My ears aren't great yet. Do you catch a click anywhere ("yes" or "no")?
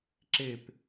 yes